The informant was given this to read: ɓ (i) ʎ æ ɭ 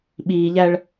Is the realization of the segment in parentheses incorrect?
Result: yes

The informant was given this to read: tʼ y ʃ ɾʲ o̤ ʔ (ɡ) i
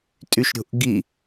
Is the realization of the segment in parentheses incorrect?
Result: no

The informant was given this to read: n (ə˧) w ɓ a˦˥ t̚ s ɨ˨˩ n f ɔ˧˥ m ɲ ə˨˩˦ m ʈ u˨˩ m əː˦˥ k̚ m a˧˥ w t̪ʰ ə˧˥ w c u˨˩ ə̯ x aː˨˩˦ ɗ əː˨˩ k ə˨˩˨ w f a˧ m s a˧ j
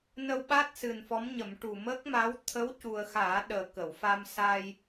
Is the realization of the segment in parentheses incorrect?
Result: no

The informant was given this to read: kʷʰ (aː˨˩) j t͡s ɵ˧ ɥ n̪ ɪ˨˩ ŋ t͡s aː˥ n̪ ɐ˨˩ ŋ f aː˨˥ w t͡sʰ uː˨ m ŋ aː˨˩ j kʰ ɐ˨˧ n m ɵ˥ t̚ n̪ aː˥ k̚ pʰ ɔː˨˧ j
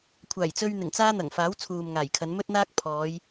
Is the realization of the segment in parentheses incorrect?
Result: no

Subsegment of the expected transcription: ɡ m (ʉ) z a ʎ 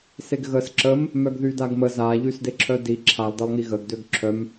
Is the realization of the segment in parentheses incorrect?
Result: yes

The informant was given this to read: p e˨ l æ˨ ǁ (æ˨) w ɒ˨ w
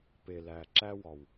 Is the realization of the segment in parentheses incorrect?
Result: yes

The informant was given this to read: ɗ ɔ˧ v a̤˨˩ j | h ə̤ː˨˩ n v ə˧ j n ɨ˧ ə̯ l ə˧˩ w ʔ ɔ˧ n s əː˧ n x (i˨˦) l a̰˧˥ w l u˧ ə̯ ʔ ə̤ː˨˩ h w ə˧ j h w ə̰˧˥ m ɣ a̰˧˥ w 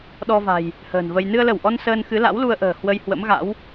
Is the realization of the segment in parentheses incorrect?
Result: yes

